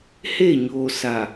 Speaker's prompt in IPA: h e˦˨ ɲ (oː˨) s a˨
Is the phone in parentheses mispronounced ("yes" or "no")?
no